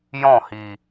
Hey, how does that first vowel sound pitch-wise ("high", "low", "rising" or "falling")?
falling